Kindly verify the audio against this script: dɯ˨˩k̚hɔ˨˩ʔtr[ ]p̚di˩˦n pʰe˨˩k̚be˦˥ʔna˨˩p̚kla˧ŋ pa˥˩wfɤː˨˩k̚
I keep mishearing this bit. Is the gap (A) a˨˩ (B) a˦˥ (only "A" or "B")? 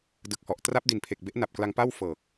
B